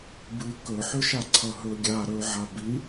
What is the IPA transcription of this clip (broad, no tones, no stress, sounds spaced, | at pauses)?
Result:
b ɨ k ɵ ħ ʏ ʃ a ǀʰ ʌ ɦ ɵ ɡʲ a ɾ ɵ ʕ a b i